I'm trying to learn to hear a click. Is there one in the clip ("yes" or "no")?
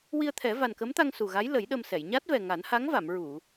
no